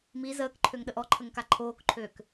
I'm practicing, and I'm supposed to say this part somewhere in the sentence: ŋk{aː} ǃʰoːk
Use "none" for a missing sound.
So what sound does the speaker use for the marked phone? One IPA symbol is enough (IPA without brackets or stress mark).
a